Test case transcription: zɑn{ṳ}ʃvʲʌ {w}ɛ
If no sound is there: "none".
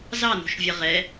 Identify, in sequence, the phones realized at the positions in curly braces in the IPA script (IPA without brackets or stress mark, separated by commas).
ṳ, ʁ